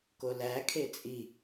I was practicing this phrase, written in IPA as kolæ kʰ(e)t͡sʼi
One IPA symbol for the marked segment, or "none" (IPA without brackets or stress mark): e